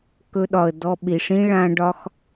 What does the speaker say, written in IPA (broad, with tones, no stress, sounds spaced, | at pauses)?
k ɵ˦ ɗ ɒ˧ ə̯ d ɔ˧ ɓ i˨ ʂ ĩ˦ ɭ ã˦ ɖ ɒ˦ x